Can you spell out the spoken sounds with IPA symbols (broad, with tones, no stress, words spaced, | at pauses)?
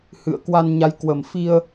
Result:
hɨ̰˧˨ə̯kwa˧nɲa˨˦j kwə˨˩mfi˧ə̯